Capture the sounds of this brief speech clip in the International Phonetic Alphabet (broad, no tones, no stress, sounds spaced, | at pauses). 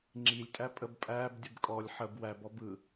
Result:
ŋ͡ǁ i lʲ tʼ æ pʼ ə b pʼ æː b dʲ ɯ b kʼ ɔ lʲ ħ ə b w æ b ɔ b ɯ